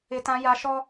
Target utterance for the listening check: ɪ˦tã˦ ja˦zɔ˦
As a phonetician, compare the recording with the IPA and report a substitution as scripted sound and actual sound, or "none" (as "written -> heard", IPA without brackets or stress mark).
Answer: z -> ʃ